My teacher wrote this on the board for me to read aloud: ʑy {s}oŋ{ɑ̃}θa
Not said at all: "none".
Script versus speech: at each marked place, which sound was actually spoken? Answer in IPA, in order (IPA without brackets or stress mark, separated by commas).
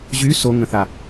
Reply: s, ə̃